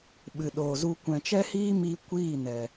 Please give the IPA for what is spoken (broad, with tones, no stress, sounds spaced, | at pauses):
ɓ ɨ˨ ɗ oː˨ z u˧ kʷ ɛ̃˨ t͡ʃ ɛ˦ h iː˦ m iː˧ kʷ iː˦˨ n ɛ˨